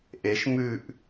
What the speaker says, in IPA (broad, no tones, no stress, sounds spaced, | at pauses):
ʔ e ʃ m ʉ ʔ